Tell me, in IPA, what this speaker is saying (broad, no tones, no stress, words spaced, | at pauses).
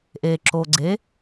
ʔe ǁo ɡ͡ǀe